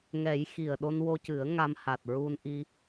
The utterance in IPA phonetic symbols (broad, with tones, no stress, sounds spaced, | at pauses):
ŋ ɛ˨˩˦ j x i˨˩ ə̯ ɗ o˧ n w o˧ c ɨ˨˩˦ ə̯ ŋ a˧ m h a˨˩ t̚ ɹ u˧ n ʔ i˧